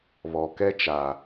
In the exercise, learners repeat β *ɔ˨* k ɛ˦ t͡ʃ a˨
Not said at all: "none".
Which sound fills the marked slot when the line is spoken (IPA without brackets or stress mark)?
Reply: ɔ˨